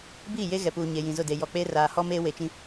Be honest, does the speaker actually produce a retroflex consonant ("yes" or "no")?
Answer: no